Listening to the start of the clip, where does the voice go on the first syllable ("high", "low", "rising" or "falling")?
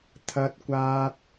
high